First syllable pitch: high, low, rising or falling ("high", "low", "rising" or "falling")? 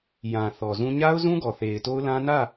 low